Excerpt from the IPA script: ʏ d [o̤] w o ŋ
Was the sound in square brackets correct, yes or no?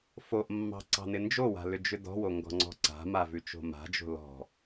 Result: no